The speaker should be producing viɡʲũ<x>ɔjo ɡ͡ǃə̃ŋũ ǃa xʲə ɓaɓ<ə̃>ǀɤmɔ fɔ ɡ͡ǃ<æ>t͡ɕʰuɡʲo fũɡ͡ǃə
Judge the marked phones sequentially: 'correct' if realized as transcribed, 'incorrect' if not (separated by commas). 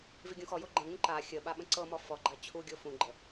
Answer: correct, correct, incorrect